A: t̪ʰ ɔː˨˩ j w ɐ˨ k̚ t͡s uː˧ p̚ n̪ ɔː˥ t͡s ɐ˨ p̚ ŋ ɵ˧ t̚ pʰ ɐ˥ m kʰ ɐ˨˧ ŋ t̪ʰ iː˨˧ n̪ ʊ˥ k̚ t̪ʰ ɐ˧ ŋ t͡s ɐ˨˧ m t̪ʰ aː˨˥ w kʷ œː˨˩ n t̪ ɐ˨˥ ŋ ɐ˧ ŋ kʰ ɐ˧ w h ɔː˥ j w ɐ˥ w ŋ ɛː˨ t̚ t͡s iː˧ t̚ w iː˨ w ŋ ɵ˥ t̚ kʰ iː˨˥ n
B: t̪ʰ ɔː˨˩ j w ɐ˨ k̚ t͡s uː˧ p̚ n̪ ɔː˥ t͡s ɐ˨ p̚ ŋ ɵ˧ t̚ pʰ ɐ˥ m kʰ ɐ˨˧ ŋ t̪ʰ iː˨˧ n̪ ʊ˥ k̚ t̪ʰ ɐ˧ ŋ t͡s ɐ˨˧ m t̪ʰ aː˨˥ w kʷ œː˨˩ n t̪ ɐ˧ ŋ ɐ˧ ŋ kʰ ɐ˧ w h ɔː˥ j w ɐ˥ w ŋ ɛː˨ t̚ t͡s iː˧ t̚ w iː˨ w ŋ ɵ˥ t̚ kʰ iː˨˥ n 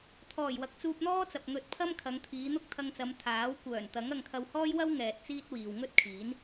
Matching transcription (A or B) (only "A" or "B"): A